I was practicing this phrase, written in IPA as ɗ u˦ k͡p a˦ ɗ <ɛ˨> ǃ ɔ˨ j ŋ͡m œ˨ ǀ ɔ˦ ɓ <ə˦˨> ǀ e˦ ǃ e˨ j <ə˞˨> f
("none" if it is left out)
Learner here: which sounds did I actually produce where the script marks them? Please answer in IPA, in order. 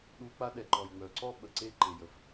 ɛ˨, ə˨, ə˨

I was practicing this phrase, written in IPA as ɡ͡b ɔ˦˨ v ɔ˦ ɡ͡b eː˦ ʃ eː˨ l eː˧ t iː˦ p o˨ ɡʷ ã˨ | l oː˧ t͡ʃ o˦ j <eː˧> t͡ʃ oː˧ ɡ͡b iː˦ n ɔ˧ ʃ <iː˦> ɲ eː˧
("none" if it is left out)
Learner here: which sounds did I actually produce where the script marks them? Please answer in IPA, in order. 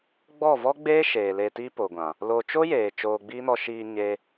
eː˨, iː˧

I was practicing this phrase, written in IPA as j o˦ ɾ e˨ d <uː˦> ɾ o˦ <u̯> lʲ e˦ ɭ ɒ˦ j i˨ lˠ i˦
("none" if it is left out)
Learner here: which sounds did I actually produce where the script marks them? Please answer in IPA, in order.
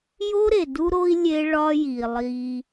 u˦, i̯

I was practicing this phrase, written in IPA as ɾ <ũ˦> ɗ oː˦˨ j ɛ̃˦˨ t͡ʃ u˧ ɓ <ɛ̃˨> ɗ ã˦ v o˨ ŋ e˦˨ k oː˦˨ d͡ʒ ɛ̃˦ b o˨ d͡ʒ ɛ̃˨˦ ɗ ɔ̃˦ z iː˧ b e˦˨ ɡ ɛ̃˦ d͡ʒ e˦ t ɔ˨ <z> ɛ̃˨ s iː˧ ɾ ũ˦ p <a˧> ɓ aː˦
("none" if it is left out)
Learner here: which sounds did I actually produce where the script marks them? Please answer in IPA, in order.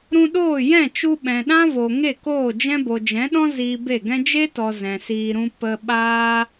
ũ˧, ɛ̃˨, z, ə˧

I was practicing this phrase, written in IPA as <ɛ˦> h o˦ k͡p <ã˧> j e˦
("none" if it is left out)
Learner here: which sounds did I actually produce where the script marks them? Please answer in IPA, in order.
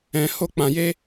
ɛ̃˦, ã˧

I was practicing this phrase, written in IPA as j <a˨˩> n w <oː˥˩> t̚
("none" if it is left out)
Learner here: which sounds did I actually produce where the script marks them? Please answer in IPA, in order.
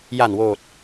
a˨˩, oː˨˩

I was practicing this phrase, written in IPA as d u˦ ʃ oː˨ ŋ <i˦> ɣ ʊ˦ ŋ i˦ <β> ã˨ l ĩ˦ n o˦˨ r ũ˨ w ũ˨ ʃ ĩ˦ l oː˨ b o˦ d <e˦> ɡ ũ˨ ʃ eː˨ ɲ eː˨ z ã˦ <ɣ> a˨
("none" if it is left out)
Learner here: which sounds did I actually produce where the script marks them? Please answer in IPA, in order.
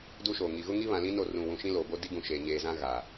i˨, β, i˦, ɣ

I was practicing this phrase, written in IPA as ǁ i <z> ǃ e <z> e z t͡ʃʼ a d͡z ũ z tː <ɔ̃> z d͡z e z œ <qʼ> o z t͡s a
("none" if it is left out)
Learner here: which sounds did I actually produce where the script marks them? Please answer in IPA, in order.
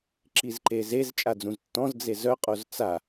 z, z, ɔ̃, qʼ

